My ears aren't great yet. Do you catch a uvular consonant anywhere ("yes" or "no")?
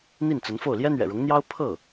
no